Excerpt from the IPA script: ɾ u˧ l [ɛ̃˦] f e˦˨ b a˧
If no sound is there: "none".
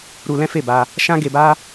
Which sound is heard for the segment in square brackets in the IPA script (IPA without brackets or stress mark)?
ɛ̃˦